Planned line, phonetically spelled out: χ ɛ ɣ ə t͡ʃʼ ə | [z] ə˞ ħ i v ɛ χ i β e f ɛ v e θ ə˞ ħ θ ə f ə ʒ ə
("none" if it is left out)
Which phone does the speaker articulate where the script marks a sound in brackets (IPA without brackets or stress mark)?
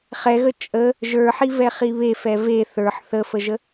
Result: ʒ